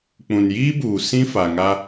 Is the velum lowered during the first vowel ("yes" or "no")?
yes